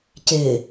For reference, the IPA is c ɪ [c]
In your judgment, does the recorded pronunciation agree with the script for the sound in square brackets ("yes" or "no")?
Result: no